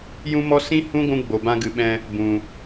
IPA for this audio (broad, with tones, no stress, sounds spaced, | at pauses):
j ũ˦ m ɔ˦ s ĩ˦ h ũ˦ ɡʷ ũ˦ ɡ͡b o˨ b ã˧ ɡ ɨ˨ ɓ ɛ̃˧ | b ũ˨